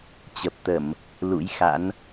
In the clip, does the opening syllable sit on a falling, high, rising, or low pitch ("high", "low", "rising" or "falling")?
low